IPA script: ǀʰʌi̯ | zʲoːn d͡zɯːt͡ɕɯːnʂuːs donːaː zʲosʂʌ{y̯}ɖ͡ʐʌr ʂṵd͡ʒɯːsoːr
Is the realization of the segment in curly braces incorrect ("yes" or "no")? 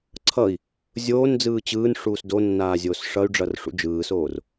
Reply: no